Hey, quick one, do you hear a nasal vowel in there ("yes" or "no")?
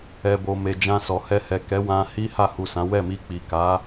yes